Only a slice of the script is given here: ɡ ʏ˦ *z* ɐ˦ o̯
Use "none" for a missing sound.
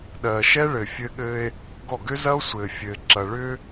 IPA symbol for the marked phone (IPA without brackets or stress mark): z